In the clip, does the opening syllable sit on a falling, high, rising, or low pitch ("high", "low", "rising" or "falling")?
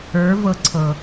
rising